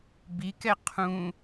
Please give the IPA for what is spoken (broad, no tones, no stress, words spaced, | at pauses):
bikɛ qʰũ